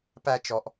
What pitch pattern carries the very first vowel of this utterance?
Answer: low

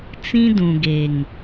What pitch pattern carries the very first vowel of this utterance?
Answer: high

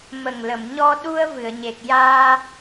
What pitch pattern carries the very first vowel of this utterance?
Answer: low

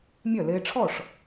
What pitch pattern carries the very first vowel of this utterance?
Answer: falling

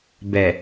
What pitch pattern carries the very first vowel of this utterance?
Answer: low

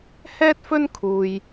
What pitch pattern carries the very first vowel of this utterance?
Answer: high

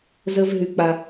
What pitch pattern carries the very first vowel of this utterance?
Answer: high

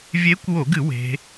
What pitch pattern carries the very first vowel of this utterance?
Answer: rising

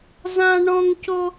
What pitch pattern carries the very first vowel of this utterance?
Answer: high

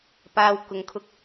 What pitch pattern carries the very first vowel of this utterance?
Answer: low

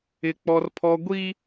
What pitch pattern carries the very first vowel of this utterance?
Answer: high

